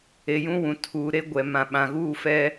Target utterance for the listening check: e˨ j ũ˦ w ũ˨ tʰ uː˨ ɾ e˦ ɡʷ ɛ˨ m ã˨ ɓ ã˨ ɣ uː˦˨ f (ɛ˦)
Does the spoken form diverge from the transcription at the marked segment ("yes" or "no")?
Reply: no